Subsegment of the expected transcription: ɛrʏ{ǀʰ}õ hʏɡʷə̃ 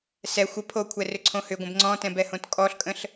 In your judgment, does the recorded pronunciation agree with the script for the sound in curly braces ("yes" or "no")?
yes